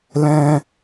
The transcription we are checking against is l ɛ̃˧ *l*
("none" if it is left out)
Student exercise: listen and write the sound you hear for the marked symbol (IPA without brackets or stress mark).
none